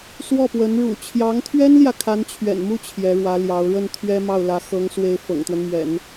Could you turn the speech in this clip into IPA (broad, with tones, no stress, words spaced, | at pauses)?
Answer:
swɔ˥˩pwə˧˥n ɻṵ˨˩t͡ɕʰjɑ˧˥ŋt̪ʰɥɛ˥nljä˨ kʰa˧˥nt͡ɕʰɥɛ̰˨˩nmu˥˩ t͡ɕʰjɛ˧˥ɻwä˧˥ljɑ˧˥ʊ̯ ɻə˥˩n t̪ʰɥɛ˥mɑ˥˩ʊ̯ lä˧˥xɤ˧˥ŋswe˧˥ɪ̯ fɤ̰˨˩ŋt̪wə˦nmɥɛ̰˨˩˦n